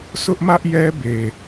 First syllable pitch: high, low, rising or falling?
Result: high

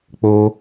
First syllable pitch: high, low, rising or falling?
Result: high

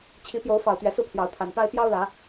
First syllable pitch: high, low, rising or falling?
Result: rising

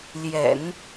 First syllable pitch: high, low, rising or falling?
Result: low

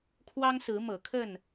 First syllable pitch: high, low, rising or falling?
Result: high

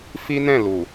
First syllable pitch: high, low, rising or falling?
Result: high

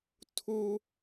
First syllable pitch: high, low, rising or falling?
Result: high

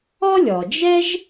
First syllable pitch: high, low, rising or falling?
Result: high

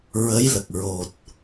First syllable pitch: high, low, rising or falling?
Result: rising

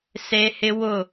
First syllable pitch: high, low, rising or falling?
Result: high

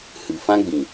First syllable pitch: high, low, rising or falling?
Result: low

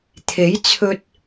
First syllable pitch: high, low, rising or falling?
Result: rising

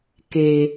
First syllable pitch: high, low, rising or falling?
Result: low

